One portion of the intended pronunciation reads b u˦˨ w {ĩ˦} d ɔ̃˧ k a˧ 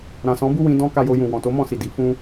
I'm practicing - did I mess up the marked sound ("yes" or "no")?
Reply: yes